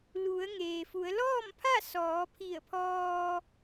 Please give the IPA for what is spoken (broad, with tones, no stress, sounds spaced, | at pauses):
l u˩˧ ə̯ ŋ eː˩ f u˩˧ ə̯ l ɔː˥˨ m pʰ a˥˨ s ɔː˩˧ pʰ i˧˩ ə̯ pʰ ɔː˧